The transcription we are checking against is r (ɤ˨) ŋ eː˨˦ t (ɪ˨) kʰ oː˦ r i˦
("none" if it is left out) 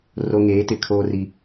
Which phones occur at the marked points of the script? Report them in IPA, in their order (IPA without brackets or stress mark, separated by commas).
o˨, ɪ˨